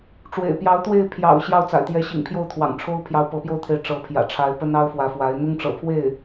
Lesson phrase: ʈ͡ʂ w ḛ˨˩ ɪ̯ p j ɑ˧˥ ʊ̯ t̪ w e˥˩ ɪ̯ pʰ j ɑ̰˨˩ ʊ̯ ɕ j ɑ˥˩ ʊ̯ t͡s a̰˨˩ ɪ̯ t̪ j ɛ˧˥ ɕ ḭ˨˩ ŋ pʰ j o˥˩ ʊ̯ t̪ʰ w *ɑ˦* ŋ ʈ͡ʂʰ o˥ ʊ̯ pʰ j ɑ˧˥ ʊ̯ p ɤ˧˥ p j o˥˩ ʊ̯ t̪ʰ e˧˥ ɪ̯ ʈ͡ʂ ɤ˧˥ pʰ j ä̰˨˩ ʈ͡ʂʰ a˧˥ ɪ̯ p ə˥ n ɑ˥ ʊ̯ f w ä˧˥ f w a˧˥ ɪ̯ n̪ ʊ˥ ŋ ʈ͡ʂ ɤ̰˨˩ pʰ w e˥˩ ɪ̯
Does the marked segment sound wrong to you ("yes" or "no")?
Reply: yes